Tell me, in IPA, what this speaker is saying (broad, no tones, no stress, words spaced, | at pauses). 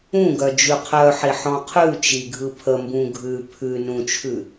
ũɡœ d͡ʒʉqʰœħi ħɔ̃qʰʉt͡ʃi ɡʱɯpʰəmbũ ɡʱʉ pʰʉ nũt͡ʃʰʉ